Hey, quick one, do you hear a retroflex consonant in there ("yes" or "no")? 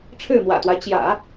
yes